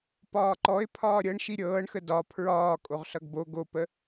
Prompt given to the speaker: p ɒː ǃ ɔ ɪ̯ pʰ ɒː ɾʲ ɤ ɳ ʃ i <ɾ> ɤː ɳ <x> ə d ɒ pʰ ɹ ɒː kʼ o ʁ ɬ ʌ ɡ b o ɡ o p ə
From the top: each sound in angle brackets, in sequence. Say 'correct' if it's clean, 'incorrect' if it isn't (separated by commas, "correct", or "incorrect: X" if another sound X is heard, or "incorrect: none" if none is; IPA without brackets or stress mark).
incorrect: ɾʲ, correct